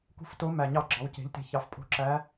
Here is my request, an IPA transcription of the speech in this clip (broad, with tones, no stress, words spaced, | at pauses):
kṳ˦˨fto˧˥mæ˨˩ ɲɑ˧˩˧ɡ͡ǁɑ˩˧wce̤˩˧ʎte̤˨˩ çɑ˩˥fpʼo̤˧˥ǁæ˧˥